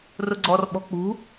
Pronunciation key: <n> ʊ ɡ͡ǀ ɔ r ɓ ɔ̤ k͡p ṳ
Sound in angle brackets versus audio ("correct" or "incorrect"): incorrect